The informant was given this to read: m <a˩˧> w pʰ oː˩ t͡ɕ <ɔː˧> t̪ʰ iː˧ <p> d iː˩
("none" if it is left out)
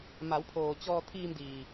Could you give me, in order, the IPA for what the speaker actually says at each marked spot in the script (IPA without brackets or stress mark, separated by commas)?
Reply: a˩˧, ɔː˧, m